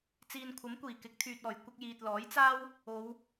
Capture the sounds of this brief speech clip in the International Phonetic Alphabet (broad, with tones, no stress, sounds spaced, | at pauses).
t͡s iː˨ n kʷʰ ɐ˨˥ m kʷ iː˨˩ k ɪ˨˥ k̚ t̪ʰ yː˨ t̚ ɔː˨˩ j kʷ ɪ˧ k̚ j iː˨ t̚ l ɔː˨˥ j t͡s aː˥ w | o˨˧ w